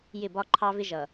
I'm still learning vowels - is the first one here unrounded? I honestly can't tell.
yes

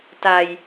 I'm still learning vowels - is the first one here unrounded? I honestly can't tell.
yes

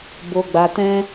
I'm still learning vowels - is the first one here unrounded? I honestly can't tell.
no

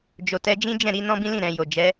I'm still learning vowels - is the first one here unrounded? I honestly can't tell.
no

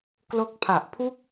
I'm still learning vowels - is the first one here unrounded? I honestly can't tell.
no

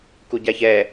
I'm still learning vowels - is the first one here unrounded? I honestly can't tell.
no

